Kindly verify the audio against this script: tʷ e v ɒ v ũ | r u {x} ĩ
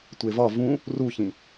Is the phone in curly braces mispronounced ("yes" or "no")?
yes